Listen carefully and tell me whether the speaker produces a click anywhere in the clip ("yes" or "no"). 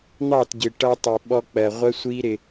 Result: no